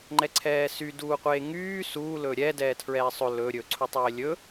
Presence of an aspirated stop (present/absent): present